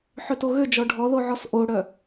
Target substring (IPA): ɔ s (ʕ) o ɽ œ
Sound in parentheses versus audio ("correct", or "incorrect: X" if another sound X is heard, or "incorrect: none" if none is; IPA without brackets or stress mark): incorrect: ʔ